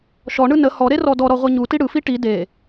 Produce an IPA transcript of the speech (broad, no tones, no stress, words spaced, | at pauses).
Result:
ʃɔɳɯ nə hɔɾe rɔdɔɾɔ ʁʷiɲuti ɽɯfi ʈi de